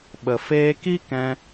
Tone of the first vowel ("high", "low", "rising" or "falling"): low